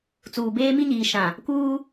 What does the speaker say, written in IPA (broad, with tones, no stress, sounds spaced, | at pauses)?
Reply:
t͡s uː˨ b eː˦ m i˦ ɲ iː˨ ʃ ã˨ | k uː˦